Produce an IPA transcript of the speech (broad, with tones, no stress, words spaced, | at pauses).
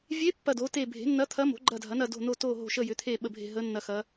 vʲe˧˥ pːɐ˦˨do˩˥te˦˨ bʱe̤˩˥nːɐ˧˥t̪ʰɐ˧˥mo̤˩˥ ɡ͡ǃɐ˦˨dʱɐ˩˥nɐ˦˨do̤˦˨ no˦˨ to˦˨ɦo̤˦˨ʃə˦˨ jʏ˩˥t̪ʰe˦˨ ɓə˦˨bʱe̤˦˨ ɦə˧˥nːɐ˦˨xɐ˧˥